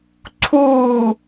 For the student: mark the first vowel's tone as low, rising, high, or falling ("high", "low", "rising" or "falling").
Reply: falling